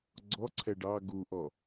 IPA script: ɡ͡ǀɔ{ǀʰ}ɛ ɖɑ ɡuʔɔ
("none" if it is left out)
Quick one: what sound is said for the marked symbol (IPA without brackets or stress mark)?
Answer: ǀʰ